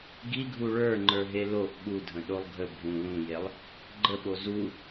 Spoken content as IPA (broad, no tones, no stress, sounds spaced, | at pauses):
ɡ i ɡʱ u ɭ ə˞ ŋ͡ǃ ə˞ ɦ e l o ʔ ɓ u dʱ ə̃ ɗ o lˠ ɡʱ ə bʱ ũ l ũ j e lˠ | ɡ͡ǃ ə ɓ o z u